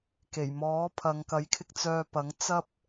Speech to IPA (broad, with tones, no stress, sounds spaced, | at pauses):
k e˨˩ j m ɔː˨˥ pʰ ɐ˨˧ ŋ k ɐ˨˥ j kʰ ɪ˧ k̚ t͡s œː˧ p ɐ˨˥ ŋ t͡s ɐ˥ p̚